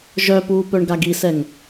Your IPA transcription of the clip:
ʒ œ p uː p œ ɳ ɡ a ɡ i s ɛ ŋ

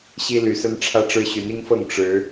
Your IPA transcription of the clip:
ɕ i˦ l y˨˩ s ə˦ n ʈ͡ʂʰ ä˦ ʈ͡ʂ ɻ̩˦ ɕ y˨˦ n i˦ ŋ f ɤ˥˨ ŋ ʈ͡ʂ ɻ̩˨˦

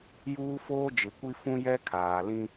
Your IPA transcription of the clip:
j uː˦ f oː˦ d͡ʒ ɪ˨ kʷ i˦ f ũ˦ j ɛ˦ kʰ aː˨ l ĩ˦

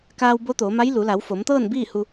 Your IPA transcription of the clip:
k aː˧ w b o˧˥ t̪ oː˩˧ m a˧˥ j l u˩˧ l a˩˧ w f o˩˧ m t̪ ɤː˥˨ n b iː˥˨ h u˧

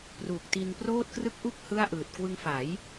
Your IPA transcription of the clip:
p r u˨˩ k̚ t i˧ n p r oː˥˩ t̚ k r ɯ˥˩ k̚ ʔ u˥˩ k̚ h ɯ˥˩ a̯ ʔ ɯː˨˩ t̚ k w ɯ˧ ŋ f a˩˦ j

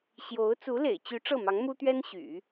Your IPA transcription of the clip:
ɕ j o˧˥ ʊ̯ t͡s u˧˥ l ḛ˨˩ ɪ̯ t͡ɕ y˧˥ ʈ͡ʂ ɤ˥˩ m ɑ˧˥ ŋ m u˥ t̪ ɥ ɛ˥ n ɕ y̰˨˩˦

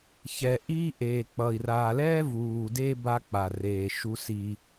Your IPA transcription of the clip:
ç ɛ˨ ʔ iː˦ ʔ eː˨ k͡p ʌ˨ i̯ r aː˨ l ɛː˦ v uː˨ d e˦ b a˦ k͡p a˨ r eː˨ ʃ u˦ s i˦

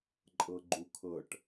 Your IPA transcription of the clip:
ǃʼ ɤ ɡ͡ǃ u kʰ ɤ ʈ

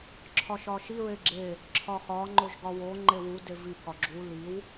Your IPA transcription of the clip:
ǁʰ ɒ ʃ ɒ ʃ i ɹ e ɡ͡ǁ e | ǁʰ ɒ x ɒ ŋ͡ǃ o ʒ ɡ ɒ w o ŋ͡ǃ e w u d e v i k ɒ ɡ͡ǁ u l i w

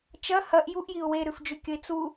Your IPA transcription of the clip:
t͡ʃ ɐ h ɐ ʔ j u ʔ j i ʊ̯ w e ɾ ʉ f d͡ʒ ʉ kʲ ɵ ɪ̯ t͡s u

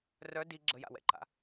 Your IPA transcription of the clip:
r œ d i ɡ͡ǁ ə j a̰ w ɛ̰ ǃ a̰

